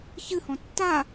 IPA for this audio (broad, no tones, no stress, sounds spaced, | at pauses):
ç ɨ h ɔ̃ tː a